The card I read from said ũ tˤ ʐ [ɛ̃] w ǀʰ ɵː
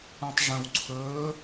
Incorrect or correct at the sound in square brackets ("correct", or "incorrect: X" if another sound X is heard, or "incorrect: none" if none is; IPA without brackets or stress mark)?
incorrect: ə̃